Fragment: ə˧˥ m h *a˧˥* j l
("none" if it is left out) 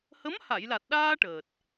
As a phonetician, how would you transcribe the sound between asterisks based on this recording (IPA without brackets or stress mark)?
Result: a˨˩˨